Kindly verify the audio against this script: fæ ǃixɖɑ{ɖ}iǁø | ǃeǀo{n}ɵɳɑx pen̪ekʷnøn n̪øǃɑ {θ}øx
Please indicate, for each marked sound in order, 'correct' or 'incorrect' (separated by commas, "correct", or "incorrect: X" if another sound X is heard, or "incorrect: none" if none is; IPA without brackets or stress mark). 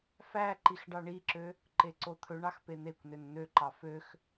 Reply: incorrect: ɳ, incorrect: t̪ʰ, incorrect: f